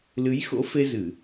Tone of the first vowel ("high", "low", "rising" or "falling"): rising